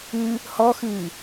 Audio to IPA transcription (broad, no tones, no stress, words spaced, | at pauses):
ɨ | hɔxɨː